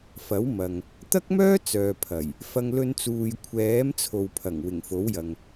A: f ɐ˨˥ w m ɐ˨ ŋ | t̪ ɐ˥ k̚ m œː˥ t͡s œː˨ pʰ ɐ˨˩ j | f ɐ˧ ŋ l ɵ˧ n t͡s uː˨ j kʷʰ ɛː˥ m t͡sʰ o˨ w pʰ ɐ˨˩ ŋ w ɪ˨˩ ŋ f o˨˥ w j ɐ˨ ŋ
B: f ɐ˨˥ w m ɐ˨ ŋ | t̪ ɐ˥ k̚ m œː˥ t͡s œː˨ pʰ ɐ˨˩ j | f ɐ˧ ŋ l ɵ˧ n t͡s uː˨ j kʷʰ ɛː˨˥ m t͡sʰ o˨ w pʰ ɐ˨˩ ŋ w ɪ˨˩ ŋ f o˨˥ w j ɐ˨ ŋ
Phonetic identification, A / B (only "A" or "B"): B